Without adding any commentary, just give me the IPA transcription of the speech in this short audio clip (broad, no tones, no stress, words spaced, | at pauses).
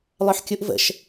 lˠœħkʲuʔvə̰ʃ